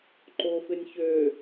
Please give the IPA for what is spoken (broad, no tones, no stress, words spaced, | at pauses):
ǃofɪnʲ çø